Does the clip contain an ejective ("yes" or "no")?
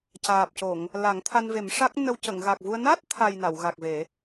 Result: no